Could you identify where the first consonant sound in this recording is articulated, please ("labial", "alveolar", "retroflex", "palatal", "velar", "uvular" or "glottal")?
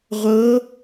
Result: uvular